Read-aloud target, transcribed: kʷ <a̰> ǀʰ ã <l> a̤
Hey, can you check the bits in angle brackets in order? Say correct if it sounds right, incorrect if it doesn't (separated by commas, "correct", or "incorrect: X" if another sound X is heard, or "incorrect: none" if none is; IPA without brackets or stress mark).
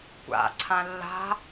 correct, incorrect: lː